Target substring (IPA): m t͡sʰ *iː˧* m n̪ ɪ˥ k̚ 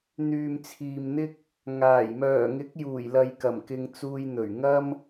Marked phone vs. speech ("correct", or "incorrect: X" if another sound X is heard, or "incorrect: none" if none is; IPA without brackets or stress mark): incorrect: iː˨